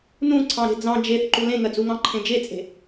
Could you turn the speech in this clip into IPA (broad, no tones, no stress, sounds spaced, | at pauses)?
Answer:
n ũ ǀʰ ɑ̃ ɾ e̤ d͡z ɑ̃ d͡ʒ e θ ǃ u l ẽ ŋ ɜ d͡z u ŋ ɑ̃ ǃʰ ẽ d͡ʒ e t͡sʼ e̤